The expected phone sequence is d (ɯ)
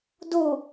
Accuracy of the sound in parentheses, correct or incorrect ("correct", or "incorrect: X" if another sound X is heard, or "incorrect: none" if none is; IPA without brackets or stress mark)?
incorrect: u